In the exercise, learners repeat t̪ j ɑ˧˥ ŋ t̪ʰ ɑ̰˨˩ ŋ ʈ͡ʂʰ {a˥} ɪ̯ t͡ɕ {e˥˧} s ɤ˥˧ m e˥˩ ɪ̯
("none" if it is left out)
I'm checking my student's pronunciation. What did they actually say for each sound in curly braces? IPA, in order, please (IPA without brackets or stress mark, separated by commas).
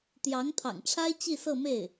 a˥, i˥˧